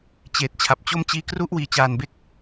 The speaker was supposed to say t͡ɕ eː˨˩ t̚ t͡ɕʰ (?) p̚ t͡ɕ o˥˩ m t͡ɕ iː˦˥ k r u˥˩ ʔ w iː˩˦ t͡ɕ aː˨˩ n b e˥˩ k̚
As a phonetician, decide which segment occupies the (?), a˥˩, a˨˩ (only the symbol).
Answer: a˨˩